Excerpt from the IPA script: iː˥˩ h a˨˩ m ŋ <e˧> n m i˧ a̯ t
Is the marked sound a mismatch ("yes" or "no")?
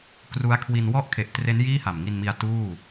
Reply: yes